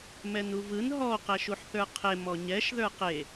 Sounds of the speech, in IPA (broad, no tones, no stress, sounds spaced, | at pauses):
m ɛ n u v ɯ n ɦ ɔ q ɛ ʃ u ħ θ ə˞ qʰ e m ɔ ɲ ɛ ʃ ð ə˞ q e